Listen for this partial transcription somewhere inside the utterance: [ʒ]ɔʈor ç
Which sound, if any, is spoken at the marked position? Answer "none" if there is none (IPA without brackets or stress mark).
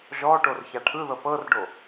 ʒ